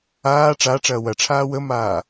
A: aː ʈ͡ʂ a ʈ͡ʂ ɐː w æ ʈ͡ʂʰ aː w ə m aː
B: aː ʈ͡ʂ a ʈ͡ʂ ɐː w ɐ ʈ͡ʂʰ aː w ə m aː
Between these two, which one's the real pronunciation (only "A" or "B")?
B